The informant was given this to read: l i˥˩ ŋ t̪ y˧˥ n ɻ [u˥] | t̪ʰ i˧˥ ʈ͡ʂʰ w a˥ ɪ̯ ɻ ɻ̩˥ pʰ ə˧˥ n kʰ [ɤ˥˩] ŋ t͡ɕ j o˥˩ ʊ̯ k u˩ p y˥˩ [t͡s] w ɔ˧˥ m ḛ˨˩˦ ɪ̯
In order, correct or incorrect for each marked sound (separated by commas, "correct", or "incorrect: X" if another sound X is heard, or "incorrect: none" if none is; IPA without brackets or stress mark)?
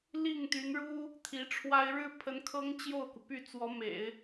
correct, incorrect: ɤ˥, correct